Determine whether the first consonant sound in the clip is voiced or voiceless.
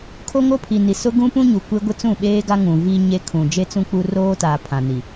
voiceless